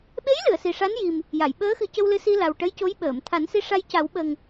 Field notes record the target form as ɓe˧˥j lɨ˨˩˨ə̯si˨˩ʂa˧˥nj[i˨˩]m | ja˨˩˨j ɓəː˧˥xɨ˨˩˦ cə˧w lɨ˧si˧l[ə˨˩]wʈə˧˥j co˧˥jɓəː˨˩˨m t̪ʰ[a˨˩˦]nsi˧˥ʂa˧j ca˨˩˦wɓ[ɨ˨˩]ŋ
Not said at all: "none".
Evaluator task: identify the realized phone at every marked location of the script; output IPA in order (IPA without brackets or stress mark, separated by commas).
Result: i˨˩, a˨˩, a˨˩˦, ə˨˩